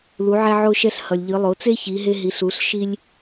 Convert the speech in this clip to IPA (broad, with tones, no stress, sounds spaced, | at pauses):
l u˩˧ ʕ ɛ˧ ʕ o˧ ʃ ɛ˧ ɬ h ʌ˩ lʲ ʎ ɯ˩˧ lˠ o˩˧ t͡s e˥ ç i˩˧ ɦ e˧ ɦ i˩˧ ɬ u˩˧ ɬ ʃ i˧ lʲ